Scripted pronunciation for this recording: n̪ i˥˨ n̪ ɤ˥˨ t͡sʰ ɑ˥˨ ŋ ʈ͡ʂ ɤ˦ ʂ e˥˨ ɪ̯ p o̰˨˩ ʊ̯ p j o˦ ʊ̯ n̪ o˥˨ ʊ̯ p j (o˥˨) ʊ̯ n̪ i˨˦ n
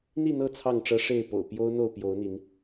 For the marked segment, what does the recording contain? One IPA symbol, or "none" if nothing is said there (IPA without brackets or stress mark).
o˨˦